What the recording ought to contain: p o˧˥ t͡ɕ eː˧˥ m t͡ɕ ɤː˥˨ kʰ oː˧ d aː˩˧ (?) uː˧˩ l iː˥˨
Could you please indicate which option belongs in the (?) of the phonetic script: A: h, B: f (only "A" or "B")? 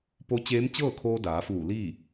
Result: B